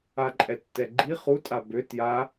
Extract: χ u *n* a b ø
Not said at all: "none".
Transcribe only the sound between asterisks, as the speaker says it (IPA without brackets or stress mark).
tʼ